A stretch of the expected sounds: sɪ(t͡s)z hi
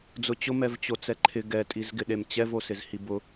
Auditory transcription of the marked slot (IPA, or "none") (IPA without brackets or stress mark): none